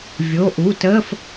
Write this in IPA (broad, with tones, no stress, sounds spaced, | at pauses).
vʲ o˩˧˩ ʔ u˩˧˩ t əː˧˥˧ f